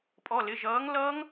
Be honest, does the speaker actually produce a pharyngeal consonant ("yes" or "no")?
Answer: no